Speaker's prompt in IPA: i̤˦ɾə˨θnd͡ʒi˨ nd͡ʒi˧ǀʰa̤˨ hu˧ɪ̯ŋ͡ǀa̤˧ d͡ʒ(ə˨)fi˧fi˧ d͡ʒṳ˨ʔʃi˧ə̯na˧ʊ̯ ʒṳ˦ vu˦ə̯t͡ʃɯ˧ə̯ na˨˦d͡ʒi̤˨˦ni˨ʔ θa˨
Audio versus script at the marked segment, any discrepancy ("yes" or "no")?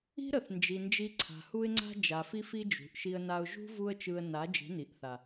yes